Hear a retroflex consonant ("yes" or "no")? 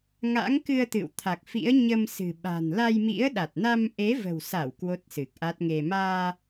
no